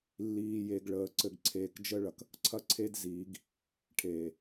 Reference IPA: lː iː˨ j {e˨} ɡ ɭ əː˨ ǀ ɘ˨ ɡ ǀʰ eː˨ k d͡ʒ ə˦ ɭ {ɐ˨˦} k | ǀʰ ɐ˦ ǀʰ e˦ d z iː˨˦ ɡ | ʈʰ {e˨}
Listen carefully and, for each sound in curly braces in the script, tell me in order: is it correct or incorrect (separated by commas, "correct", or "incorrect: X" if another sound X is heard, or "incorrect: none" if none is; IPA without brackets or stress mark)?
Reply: correct, incorrect: ɐ˨, incorrect: eː˨